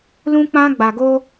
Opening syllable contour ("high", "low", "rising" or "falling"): high